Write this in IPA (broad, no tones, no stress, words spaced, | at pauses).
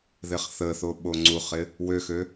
ðɪχθəθo ɓoŋ͡ǀuχɪ | wøxø